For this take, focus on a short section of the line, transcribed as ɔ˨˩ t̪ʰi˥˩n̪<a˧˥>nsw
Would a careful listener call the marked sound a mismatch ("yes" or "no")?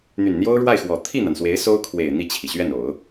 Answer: yes